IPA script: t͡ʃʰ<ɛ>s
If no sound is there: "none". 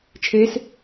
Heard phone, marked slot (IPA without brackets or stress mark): e